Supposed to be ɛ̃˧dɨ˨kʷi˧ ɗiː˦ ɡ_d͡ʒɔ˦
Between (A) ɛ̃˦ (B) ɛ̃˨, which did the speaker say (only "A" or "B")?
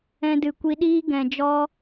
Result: B